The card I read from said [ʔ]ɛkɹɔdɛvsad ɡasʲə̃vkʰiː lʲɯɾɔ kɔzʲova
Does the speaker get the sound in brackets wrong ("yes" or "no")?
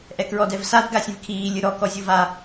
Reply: no